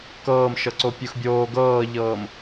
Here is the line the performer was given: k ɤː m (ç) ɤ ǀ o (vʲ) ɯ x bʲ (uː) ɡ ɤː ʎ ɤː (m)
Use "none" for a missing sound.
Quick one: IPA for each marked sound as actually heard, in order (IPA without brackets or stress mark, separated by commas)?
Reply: ʃ, pʲ, oː, m